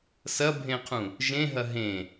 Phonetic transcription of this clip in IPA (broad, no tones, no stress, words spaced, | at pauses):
sɐbʱẽqʰũ | ʒẽɦɐ ɦẽ